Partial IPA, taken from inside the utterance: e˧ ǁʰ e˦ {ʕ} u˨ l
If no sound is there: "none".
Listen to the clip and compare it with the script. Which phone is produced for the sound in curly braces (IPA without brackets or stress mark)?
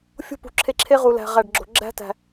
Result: ʁ